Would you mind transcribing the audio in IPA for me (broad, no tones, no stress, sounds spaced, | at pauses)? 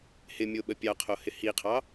h ɪ mʲ o ɓ ə pʲ ɑ qʰ o h ɪ h i qʰ ɑ